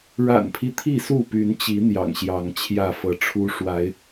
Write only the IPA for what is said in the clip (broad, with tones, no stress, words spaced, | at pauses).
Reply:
ɻa̰˨˩npʰi˦ t̪ʰi˥˨su˥˨py˨˦nt͡ɕi˨˦ n̪jɑ̰˨˩ŋɕjɑ˨˦ŋt͡ɕʰjä˥˨fɤ˨˦ ʈ͡ʂʰu˦ʂwa˨˦ɪ̯